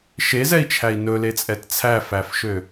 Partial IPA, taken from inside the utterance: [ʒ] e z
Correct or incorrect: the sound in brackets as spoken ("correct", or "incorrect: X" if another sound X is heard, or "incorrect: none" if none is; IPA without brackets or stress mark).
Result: incorrect: ʃ